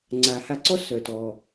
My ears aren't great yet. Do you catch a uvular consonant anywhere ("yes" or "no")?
no